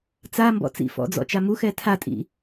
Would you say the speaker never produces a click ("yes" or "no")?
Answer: yes